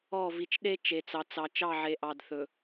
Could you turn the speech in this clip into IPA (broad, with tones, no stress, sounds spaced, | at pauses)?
ɔ˦˨ v i˨ t͡ʃ ɗ e˦ t͡ʃ e˨ t͡s ɑ˨ t͡s ɑ˨ t͡ʃ ɑ˦˨ ʕ e˨ ʔ ɑ˨ d θ ɵ˨